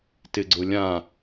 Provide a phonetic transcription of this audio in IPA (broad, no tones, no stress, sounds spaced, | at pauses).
t ɪ ɡ͡ǀ ʊ lʲ ã